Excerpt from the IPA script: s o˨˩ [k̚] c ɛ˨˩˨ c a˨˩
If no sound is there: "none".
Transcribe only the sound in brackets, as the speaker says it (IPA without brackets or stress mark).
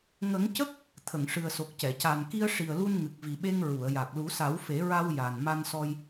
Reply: k̚